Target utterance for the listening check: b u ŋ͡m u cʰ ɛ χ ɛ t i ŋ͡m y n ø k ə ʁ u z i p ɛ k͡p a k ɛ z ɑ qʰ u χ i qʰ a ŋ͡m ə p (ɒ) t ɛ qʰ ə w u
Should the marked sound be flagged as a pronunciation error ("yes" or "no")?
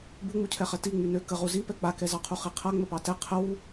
yes